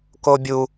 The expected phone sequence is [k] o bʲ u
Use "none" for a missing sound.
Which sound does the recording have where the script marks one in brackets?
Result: k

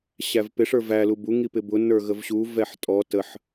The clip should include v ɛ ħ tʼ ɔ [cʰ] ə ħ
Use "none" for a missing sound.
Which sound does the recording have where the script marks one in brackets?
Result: t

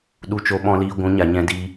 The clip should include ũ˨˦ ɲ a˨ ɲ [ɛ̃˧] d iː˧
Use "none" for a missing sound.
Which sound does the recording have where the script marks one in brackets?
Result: ɛ̃˧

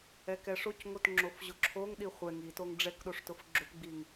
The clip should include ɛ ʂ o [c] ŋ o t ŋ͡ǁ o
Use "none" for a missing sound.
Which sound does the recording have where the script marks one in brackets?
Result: c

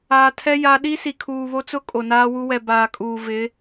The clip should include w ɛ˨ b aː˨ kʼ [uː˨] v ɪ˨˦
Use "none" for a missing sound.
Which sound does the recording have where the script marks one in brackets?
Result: uː˨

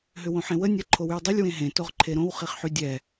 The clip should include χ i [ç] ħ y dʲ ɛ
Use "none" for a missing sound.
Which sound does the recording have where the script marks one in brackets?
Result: χ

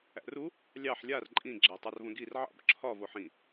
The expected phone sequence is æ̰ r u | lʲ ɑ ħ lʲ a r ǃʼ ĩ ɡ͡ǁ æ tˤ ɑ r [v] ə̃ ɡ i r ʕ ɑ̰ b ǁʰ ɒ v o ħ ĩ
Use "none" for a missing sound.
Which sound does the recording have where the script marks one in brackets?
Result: v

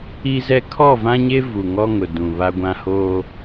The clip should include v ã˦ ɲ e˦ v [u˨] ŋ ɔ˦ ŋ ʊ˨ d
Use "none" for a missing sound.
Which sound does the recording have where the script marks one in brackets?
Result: u˨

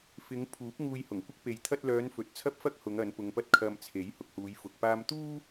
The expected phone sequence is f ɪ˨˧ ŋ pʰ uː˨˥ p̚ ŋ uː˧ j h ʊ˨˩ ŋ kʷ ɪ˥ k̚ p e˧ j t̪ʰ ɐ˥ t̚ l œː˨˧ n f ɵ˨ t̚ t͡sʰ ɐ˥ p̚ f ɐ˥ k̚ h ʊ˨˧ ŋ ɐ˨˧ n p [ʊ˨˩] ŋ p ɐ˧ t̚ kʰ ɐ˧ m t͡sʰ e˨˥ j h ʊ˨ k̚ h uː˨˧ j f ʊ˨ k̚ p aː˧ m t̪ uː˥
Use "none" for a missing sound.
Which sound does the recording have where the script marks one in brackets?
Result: ʊ˨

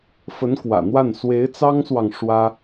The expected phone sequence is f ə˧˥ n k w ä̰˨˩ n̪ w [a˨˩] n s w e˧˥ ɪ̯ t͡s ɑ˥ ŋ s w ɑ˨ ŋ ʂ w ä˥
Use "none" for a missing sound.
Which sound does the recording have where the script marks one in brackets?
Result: a˥˩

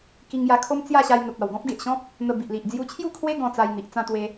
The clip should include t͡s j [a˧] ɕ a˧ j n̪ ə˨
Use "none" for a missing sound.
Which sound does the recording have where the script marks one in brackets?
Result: a˥˧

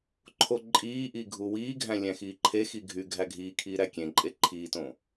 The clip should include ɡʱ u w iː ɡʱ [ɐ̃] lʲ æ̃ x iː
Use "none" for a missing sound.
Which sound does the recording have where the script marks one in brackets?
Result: æ̃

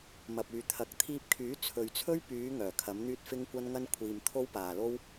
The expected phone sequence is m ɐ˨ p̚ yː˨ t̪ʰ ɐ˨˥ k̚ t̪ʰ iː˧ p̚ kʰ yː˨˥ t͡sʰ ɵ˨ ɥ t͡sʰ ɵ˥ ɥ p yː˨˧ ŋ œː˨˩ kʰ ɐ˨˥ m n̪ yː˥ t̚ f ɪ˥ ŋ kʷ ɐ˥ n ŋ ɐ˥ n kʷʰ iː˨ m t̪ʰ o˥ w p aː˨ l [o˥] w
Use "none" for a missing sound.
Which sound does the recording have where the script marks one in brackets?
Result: o˥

